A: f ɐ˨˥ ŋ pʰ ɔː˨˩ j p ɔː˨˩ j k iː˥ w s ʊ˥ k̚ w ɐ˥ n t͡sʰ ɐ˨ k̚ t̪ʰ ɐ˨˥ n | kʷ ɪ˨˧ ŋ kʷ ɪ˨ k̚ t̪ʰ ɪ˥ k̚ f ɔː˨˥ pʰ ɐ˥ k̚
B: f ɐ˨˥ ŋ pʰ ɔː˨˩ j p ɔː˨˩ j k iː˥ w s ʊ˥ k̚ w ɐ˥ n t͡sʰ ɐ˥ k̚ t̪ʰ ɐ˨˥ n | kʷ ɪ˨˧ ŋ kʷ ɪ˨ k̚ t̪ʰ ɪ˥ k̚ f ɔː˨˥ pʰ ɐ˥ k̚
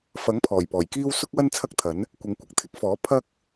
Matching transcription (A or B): B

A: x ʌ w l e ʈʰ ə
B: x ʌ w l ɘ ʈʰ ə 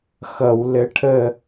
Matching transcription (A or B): B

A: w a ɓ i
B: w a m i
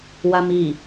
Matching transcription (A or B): B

